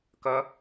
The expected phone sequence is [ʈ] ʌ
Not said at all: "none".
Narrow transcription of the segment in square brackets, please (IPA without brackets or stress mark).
k